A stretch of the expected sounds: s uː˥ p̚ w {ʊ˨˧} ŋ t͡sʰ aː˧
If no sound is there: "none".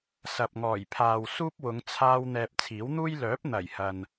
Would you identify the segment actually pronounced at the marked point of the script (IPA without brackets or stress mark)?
ʊ˨˧